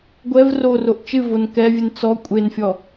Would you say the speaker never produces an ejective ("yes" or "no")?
no